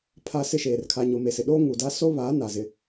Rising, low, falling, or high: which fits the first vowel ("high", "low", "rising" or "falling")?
high